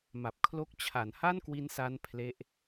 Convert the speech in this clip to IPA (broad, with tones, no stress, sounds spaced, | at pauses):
m a˨˩ p̚ kʰ l o˦˥ k̚ t͡ɕʰ a˩˦ n h a˥˩ n k w i˦˥ n s a˦˥ n pʰ l e˦˥ ʔ